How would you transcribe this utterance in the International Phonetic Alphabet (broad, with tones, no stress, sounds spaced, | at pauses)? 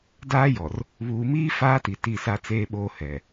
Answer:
d aː˦ j ɔ˨ r | β uː˨ m iː˦ f aː˦ t i˨ t i˦˨ s a˦ t͡s eː˦ ɓ oː˦ h ɛ˨